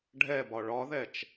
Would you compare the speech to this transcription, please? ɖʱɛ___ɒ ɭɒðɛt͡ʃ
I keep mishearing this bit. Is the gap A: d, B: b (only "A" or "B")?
B